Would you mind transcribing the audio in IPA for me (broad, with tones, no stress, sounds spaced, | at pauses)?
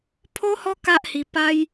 pʰ o˦ h ɔ˦ k a˦ ʔ h i˧ p a˦ j